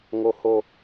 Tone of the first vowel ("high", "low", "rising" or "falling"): low